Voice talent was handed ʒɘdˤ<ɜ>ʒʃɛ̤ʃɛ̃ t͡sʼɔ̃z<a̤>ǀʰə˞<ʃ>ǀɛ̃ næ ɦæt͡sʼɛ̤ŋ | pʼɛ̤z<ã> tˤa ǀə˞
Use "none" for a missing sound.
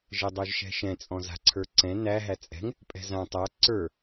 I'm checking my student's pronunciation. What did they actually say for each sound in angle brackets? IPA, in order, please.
ə˞, a̤, none, ã

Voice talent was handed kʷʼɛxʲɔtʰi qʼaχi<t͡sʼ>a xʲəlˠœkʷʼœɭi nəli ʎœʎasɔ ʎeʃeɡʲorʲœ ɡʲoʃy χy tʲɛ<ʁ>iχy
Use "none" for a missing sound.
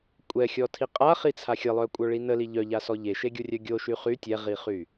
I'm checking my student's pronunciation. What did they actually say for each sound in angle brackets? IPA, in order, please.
t͡sʰ, ʁ

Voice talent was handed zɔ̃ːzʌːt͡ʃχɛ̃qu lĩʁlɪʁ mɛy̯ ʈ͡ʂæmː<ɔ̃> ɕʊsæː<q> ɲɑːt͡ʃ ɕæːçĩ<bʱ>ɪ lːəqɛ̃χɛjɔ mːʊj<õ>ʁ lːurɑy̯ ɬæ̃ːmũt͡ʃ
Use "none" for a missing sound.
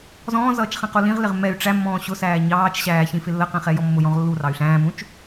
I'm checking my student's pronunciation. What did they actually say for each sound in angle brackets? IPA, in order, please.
ɔ̃ː, none, f, ɔ̃

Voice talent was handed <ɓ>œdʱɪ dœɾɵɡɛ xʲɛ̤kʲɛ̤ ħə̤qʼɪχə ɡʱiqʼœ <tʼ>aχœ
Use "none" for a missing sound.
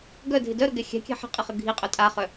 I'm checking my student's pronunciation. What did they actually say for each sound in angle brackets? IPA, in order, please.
ɡ, tʼ

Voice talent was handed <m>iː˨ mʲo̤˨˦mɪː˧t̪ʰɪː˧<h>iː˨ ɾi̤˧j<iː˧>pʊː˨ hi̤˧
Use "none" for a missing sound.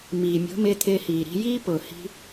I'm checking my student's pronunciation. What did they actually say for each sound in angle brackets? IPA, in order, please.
m, h, iː˦

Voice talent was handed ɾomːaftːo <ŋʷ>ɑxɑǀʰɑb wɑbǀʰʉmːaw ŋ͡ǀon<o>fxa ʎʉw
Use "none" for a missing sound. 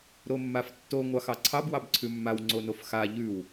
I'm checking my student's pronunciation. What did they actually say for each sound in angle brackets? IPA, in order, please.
ŋʷ, o

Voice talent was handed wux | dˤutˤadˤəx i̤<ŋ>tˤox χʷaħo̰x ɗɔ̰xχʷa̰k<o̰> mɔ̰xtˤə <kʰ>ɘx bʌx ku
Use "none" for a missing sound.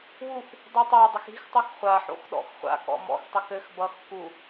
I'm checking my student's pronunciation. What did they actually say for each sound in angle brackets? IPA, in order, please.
x, ɔ̰, k

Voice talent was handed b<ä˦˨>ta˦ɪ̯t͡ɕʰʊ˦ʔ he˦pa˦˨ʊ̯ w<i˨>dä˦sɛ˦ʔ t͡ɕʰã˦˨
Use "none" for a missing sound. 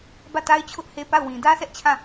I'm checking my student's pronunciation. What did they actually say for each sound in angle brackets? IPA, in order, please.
ä˦˨, ĩ˨

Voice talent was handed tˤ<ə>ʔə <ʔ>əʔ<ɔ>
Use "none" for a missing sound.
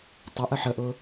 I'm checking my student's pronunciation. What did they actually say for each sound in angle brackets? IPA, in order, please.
ə, ħ, ʊ

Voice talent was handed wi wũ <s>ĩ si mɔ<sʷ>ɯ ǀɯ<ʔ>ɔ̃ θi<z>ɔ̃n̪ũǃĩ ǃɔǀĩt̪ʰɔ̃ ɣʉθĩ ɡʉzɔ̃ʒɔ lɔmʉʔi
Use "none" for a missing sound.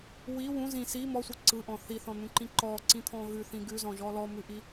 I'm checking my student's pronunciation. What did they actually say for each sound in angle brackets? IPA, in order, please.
z, sʷ, ʔ, θ

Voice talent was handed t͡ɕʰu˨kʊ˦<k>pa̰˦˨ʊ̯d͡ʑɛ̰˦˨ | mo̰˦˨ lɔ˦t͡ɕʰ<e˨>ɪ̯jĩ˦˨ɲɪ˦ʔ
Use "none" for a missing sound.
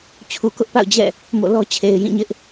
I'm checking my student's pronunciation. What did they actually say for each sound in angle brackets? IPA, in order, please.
ʔ, e˨

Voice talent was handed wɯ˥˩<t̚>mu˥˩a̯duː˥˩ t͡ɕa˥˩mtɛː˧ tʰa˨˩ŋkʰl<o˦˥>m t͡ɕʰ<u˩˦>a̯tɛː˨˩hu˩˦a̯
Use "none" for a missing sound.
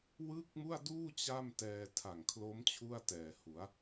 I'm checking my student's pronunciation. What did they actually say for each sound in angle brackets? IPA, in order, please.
k̚, o˦˥, u˥˩

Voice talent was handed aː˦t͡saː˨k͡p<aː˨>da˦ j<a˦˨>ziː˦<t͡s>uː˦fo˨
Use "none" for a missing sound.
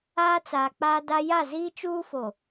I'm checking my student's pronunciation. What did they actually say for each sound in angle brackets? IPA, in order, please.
aː˦, a˦˨, t͡ʃ

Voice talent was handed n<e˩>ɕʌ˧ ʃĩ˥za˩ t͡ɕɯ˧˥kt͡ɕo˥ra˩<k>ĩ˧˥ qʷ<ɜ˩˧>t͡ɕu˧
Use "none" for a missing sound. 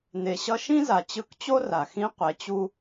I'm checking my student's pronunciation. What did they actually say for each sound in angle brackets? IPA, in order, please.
e˩, x, ɛ˩˧

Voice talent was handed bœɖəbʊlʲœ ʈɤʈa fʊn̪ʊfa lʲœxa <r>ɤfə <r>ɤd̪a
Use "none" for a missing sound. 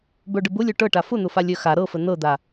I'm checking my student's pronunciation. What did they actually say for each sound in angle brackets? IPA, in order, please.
ɾ, n̪

